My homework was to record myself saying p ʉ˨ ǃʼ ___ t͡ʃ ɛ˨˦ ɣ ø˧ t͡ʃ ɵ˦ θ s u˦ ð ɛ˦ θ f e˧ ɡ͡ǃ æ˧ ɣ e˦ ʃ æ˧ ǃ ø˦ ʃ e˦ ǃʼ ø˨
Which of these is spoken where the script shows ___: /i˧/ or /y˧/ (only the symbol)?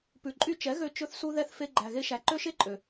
y˧